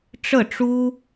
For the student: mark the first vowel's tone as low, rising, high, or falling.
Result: falling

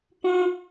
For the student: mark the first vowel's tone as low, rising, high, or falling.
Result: high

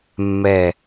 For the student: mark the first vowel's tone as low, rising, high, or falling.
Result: low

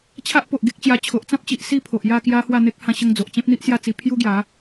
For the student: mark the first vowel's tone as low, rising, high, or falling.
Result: high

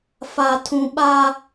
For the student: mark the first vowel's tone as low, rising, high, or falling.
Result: high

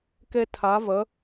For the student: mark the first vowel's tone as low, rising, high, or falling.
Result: high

